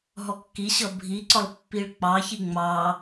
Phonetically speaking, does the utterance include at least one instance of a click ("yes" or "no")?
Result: yes